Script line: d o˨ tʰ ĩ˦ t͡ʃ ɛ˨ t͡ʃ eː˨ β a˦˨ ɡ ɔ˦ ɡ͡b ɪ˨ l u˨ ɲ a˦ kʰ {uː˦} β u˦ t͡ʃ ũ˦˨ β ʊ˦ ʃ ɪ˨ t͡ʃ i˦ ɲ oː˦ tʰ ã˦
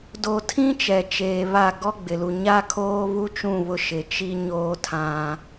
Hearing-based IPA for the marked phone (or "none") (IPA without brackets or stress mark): oː˦